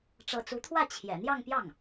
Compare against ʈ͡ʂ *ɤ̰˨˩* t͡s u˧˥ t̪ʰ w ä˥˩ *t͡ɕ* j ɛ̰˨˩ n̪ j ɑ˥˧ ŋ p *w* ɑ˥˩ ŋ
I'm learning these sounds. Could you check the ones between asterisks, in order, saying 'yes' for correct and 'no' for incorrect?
yes, no, no

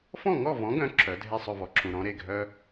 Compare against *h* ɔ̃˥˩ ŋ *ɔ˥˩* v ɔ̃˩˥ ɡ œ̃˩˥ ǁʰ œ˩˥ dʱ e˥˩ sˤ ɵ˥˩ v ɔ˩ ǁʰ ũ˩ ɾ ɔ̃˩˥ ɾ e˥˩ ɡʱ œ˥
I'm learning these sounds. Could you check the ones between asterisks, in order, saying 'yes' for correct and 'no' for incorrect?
no, yes

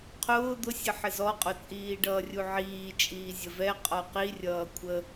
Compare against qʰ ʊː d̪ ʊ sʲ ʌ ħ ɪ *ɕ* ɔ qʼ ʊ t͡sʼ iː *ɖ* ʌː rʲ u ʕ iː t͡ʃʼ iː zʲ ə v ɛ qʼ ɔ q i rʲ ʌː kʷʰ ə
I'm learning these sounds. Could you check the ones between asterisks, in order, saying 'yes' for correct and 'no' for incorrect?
no, yes

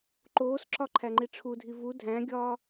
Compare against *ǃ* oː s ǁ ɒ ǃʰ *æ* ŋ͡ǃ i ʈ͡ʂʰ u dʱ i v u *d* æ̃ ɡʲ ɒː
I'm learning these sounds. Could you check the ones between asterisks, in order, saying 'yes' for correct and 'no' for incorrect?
yes, yes, no

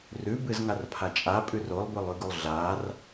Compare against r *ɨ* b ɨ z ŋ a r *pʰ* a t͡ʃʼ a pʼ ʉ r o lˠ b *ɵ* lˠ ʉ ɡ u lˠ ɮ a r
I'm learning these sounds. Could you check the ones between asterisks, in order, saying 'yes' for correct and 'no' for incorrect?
no, yes, yes

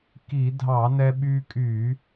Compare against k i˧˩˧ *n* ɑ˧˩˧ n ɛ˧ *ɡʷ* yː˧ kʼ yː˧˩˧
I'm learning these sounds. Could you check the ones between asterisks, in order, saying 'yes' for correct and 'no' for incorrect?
no, no

